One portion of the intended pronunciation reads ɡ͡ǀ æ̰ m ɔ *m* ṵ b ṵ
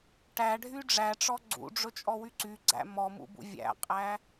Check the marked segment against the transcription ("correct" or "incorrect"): correct